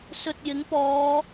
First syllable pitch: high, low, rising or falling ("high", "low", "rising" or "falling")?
low